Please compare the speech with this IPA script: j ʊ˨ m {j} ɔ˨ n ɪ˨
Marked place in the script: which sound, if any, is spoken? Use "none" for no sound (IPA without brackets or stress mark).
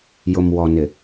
w